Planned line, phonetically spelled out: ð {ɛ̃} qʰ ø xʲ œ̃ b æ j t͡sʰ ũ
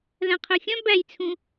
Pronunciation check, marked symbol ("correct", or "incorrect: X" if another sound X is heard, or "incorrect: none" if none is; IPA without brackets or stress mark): incorrect: æ̃